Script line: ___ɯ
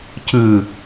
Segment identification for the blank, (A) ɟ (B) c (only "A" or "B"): B